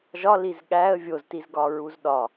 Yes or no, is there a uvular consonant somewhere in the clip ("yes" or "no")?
no